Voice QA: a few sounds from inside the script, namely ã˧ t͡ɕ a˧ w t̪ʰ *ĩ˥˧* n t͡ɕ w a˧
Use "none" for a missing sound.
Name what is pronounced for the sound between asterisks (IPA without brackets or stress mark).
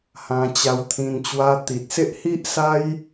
ĩ˧